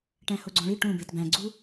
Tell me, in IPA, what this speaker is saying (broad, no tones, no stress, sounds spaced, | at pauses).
ʈ æ̃ h o ɡ͡ǀ õ ɭ i ʈ ũ b e t b æ̃ ɡ͡ǀ u